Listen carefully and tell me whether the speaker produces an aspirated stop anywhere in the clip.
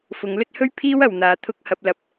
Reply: yes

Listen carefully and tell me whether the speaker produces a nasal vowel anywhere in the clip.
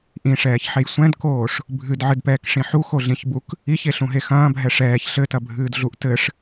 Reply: yes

